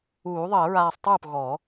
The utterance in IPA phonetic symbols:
uː˨˩˦ ðˤ əː˨˩˦ ɹ aː˧ sˤ tˤ uː˥˩ p ɣ ɔ˨˩˦

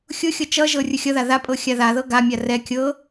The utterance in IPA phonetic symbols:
xʲ ʊ xʲ ɤ t͡ʃ ʌ ʒ ɤ rʲ ʊ xʲ ʌ ð a ð a pʼ ɤ xʲ a ð a ð ɤ ɡ a mʲ a r ɛ kʲ ɤ

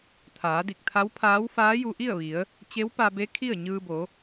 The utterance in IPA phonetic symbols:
t̪ʰ aː˩˧ d i˧˩ k̚ t̪ʰ a˧˥ w pʰ aː˧˥ w f aː˧˥ j u˧ ʔ i˥˨ ə̯ ʋ i˩˧ ə̯ | t͡ɕ e˧˥ w p a˧ b e˧˥ kʰ i˥˨ ə̯ ɲ ɯː˧ b o˩˧

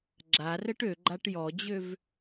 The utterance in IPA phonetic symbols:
ɡ͡ǁ a r ə ʈ ø ɡ͡ǃ a ʈ j ɔ d͡ʑ ø v

